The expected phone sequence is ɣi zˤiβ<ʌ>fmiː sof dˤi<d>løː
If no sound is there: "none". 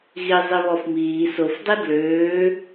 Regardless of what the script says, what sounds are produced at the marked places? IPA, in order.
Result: ɔ, d

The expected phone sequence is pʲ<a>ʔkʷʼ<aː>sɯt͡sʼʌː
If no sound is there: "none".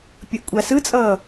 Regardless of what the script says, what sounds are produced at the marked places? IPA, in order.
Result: ʌ, a

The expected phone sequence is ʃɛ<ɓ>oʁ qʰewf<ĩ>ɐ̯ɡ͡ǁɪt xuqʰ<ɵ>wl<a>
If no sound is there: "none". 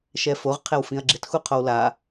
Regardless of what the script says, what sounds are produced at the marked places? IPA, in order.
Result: f, ĩ, o, a

